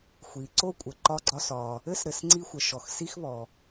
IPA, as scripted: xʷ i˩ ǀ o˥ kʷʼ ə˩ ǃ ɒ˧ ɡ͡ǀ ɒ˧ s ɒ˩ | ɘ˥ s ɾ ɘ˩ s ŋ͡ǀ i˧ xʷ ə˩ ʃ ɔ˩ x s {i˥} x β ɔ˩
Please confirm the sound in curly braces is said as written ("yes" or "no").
yes